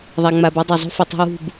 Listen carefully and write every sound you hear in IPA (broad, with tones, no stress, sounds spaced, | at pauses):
ðˤ a˨ ŋ͡m a˨ b e˦ dˤ ɐ˨ zˤ ṳ˦ f ɵ˨ tˤ ṳ˦ w ṳ˦˨ b